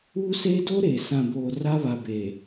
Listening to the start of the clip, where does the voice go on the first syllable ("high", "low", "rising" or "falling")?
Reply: high